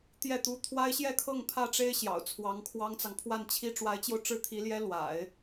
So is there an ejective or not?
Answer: no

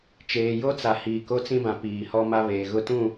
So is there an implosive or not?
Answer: no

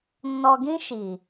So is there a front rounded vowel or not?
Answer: no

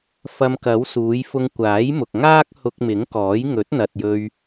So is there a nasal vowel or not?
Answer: no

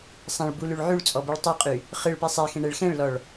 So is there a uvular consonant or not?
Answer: yes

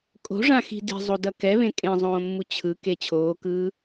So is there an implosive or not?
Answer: no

